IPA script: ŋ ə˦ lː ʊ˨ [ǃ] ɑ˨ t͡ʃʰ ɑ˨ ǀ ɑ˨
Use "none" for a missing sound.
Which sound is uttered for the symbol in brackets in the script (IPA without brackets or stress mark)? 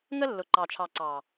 ǃ